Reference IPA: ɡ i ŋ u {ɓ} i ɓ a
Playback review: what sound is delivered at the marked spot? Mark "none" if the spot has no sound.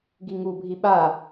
bʱ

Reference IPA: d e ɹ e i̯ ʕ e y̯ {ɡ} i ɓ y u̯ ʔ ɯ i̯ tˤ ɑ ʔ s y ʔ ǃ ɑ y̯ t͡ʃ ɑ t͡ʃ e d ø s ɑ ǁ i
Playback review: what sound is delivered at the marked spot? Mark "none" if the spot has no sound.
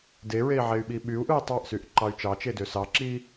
ɓ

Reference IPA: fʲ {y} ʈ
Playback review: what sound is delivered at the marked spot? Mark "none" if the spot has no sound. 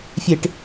e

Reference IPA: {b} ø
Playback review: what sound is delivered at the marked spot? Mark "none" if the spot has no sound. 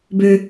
b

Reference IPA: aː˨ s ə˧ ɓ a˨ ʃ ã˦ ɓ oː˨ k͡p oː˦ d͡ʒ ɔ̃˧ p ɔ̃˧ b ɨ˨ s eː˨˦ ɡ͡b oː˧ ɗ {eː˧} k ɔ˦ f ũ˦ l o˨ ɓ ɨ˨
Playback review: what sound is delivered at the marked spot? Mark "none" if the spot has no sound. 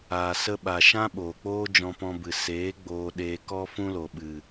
eː˧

